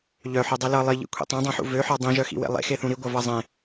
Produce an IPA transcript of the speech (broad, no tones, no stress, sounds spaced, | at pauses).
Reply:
ʎ œ ħ ø dˤ i l ʌ lˠ i ʎ ḭ kʷʰ ḭ tˤ œ̃ dˤ œ̃ ħ ṵ v ø ħ ɒ dˤ ĩ ʒ œ x ḭ w ḛ lˠ ḛ x e θ ũ ɾ i ɡʷ ʌ v ʌ zˤ ẽ